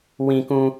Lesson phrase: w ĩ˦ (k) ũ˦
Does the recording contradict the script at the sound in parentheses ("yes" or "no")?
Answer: no